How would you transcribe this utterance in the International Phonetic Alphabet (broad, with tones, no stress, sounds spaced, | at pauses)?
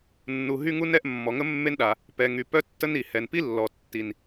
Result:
nː u˩ ɦ y˥ ŋ u˥ n ɛ˥ ʔ mː ɔ˩ ŋ ə˥ mː e˥ n ɗ a˩ | p ɛ˩ ŋ y˩ p œ˥ tː ə˥ n i˩ h ɛ˩ n p i˥ lː ɔ˩ tː i˩ n